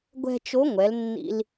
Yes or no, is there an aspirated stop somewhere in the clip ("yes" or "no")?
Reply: no